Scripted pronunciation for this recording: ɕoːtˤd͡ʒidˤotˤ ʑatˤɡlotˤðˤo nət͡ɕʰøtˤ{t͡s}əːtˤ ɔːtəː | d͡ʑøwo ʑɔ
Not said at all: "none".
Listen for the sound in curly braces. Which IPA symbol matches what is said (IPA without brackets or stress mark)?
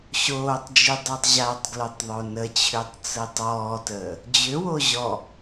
t͡s